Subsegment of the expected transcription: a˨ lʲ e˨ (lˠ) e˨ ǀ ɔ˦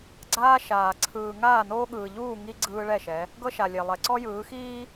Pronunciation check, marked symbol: correct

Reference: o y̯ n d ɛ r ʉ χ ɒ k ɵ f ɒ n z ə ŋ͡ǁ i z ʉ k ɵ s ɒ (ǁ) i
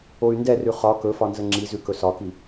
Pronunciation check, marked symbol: incorrect: k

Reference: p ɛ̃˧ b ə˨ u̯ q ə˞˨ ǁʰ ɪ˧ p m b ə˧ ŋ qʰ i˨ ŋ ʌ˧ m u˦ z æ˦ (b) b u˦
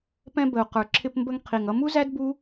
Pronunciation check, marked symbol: incorrect: d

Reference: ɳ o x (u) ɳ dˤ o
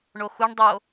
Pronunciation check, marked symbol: correct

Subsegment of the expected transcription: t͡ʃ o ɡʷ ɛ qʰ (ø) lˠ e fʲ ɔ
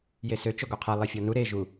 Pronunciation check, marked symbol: incorrect: e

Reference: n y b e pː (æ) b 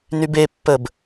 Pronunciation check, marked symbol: incorrect: ə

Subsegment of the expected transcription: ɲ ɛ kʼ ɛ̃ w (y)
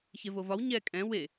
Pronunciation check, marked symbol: incorrect: e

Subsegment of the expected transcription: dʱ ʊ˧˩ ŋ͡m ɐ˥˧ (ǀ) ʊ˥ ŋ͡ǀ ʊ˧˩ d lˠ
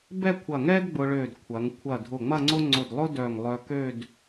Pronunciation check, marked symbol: incorrect: ŋ͡ǀ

